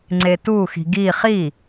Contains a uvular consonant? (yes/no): yes